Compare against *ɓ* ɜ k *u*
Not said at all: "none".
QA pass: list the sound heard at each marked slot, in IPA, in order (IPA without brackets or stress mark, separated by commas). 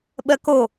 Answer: ɓ, o